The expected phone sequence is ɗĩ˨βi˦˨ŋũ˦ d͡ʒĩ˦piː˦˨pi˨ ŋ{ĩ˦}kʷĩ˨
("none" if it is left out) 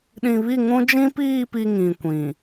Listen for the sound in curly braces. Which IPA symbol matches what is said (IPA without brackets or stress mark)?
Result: ĩ˨